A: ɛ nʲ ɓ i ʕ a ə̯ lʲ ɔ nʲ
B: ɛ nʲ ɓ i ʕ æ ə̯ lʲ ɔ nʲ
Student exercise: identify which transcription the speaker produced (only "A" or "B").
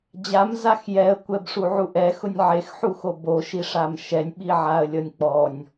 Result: A